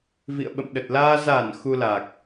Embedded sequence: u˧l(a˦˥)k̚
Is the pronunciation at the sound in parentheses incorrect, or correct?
incorrect